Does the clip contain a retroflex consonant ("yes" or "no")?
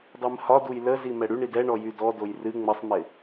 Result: yes